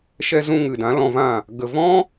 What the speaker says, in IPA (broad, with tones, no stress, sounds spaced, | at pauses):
ʃ ɛ˧ z ũ˧ ŋ ɨ˨ d ã˨˦ l ɔ̃˧ v ã˦˨ | ɡ ə˨ v ɔ̃˦